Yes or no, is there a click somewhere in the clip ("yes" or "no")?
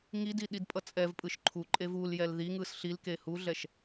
yes